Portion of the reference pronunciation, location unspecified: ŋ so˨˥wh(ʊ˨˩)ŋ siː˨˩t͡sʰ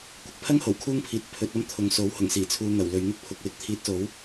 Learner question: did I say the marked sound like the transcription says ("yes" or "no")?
yes